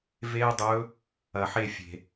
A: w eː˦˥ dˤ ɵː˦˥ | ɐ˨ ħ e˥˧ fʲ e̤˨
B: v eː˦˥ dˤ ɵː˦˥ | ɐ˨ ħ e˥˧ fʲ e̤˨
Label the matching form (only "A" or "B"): B